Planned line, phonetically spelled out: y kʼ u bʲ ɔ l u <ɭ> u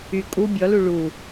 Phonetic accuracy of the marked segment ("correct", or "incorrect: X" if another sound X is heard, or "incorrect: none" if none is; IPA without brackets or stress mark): correct